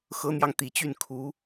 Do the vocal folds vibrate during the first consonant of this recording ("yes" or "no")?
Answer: no